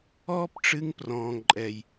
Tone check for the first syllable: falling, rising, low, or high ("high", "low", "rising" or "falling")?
high